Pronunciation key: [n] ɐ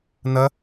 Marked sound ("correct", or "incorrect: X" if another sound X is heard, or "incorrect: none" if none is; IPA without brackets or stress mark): correct